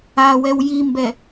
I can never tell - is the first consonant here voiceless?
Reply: no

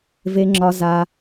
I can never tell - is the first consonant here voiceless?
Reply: no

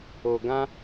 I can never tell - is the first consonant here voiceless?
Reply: no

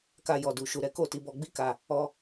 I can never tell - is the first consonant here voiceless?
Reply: yes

